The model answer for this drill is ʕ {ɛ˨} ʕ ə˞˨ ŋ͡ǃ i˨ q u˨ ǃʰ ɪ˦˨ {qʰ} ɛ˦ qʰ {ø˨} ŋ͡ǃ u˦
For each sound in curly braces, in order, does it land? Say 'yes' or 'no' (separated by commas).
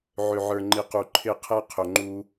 no, yes, yes